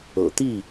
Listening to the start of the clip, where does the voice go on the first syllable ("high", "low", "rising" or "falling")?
low